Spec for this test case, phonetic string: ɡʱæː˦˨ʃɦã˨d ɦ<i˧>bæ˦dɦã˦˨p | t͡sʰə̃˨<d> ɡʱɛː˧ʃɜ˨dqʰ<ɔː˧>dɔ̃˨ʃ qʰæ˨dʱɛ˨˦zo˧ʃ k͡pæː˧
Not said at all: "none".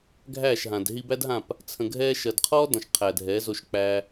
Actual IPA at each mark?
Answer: i˧, none, ɔː˦

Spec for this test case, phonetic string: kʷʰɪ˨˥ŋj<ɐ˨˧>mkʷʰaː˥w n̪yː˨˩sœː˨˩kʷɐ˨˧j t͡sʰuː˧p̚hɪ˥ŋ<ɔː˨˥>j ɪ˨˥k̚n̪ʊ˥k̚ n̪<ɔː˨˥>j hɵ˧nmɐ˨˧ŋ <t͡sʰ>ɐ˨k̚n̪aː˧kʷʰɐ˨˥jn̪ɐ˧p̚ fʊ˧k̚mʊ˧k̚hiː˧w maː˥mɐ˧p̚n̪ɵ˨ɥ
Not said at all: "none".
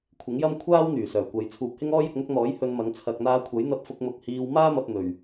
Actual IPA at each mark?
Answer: ɐ˥, ɔː˥, ɔː˨˥, t͡sʰ

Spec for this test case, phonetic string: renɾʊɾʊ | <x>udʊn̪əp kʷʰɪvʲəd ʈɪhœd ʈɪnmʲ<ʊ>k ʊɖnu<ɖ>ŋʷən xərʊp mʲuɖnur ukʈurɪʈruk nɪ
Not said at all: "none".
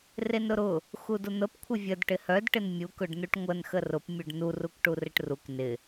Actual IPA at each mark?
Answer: x, u, ʈ

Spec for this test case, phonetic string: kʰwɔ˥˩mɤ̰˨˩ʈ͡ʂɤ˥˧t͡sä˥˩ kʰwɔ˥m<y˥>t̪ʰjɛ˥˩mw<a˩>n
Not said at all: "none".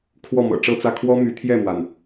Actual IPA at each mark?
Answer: y˧˥, a˩

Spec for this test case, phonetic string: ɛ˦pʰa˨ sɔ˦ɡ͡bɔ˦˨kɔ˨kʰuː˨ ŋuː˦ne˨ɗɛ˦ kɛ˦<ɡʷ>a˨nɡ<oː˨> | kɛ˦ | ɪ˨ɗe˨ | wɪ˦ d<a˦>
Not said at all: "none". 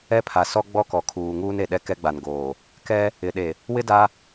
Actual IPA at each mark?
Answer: ɡ͡b, oː˨, a˦

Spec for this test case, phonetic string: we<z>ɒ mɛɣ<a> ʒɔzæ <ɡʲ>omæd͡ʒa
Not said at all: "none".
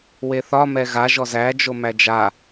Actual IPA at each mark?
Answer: θ, a, d͡ʒ

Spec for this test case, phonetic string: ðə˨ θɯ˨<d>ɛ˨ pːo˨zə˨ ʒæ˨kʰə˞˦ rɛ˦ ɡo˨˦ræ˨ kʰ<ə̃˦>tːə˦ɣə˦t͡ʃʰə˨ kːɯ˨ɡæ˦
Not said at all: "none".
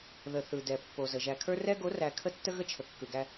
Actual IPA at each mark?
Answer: d, ə˦

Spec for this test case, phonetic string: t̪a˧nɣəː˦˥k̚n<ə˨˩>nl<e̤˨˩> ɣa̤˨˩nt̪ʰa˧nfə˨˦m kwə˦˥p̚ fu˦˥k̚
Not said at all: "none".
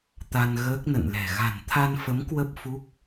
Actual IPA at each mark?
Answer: ə̰˧˨, ɛ̤˨˩

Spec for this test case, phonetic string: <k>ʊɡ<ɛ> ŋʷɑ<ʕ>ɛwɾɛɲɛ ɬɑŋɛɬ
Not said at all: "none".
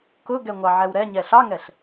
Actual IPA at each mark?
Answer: k, ɛ, ʕ

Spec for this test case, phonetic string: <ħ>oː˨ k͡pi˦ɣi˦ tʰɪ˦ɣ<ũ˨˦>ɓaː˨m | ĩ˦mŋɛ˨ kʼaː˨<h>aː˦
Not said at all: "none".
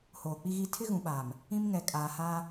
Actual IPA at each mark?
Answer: h, ũ˨, h

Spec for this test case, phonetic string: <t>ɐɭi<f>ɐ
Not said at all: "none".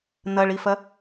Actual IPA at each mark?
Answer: n̪, f

